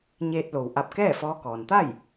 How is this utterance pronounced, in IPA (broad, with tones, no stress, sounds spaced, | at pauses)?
ɲ eː˧ t̚ l o˩ w ʔ a˧ p̚ k ɛː˥˨ f ɔː˧˥ k ɔː˩ n t̪ a˥˨ j